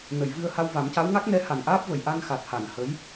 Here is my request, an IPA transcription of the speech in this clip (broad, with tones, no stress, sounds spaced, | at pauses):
n ə˨˩˨ j v ɨ˧ ə̯ h a˧ w v a˨˩˦ m c a˧˥ w ŋ a˦˥ k̚ n ɛ˧˥ h a˨˩ n ʔ aː˦˥ p̚ v ə˨˩ j ʔ a˧ n x a˨˩ t̚ h a˨˩˨ n h ə˧˥ j